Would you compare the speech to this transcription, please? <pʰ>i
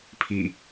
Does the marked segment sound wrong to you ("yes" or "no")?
no